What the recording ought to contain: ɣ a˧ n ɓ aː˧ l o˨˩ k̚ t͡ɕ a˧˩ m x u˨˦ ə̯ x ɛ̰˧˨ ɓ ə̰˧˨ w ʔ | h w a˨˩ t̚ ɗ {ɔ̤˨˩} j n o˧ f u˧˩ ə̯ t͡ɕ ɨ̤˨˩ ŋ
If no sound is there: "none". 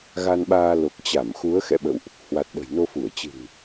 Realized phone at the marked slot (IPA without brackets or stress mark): ə̤˨˩